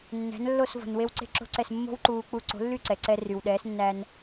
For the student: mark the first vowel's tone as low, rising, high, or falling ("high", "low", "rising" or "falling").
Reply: rising